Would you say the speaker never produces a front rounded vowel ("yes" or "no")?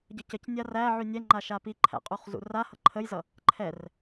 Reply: no